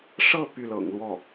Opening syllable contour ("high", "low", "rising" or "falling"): falling